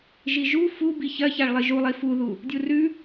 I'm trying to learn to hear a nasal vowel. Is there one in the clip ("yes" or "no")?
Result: no